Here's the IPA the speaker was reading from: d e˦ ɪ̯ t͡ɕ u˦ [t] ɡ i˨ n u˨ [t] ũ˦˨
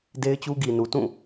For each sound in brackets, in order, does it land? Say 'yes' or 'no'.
no, yes

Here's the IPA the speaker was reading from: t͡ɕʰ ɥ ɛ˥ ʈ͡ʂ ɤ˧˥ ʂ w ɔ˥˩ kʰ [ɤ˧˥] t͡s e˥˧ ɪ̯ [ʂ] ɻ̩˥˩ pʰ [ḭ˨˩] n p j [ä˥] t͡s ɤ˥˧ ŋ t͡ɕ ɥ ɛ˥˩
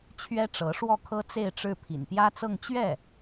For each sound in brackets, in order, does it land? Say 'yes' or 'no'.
no, no, yes, yes

